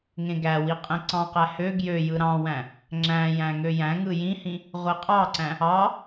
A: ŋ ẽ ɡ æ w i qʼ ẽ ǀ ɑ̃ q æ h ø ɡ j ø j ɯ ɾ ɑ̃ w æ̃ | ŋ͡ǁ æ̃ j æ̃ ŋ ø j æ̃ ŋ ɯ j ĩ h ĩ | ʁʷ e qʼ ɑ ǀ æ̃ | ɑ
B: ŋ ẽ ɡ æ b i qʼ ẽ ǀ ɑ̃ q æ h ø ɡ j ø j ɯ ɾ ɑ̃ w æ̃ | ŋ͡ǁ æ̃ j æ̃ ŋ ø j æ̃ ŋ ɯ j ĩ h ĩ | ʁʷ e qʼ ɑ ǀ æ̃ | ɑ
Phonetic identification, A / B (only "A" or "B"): A